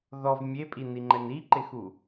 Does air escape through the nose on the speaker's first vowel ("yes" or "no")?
no